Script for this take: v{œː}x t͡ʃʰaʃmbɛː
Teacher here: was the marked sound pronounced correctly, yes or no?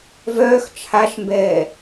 yes